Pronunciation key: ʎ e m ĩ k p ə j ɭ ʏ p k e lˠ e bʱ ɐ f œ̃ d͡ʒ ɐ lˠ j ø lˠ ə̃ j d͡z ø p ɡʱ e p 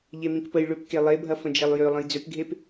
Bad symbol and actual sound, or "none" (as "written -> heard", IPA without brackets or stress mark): œ̃ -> ə̃